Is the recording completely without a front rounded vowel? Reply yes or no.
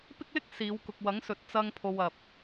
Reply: yes